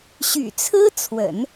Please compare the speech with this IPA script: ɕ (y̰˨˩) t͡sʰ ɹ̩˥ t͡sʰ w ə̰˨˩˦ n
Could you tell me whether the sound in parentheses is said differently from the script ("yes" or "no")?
no